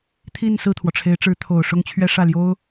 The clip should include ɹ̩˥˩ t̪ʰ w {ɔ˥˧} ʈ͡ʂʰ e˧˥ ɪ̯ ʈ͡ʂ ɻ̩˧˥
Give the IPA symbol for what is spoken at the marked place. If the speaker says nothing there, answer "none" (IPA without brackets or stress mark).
ɔ˩